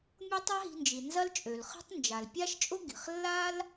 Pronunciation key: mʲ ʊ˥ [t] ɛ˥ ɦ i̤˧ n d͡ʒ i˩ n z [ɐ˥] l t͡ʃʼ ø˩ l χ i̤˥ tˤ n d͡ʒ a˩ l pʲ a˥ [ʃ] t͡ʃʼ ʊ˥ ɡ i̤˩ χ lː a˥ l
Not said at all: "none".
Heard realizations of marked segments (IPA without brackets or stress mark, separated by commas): tˤ, ɐ˥, ʃ